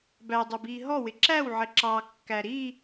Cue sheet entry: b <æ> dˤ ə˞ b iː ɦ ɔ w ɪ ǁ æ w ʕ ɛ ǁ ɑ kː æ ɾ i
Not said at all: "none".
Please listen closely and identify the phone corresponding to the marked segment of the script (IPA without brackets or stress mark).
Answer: æ